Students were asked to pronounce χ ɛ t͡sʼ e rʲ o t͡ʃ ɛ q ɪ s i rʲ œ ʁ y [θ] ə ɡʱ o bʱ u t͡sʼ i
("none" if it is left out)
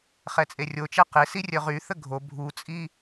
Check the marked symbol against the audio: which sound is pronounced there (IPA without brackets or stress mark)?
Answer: θ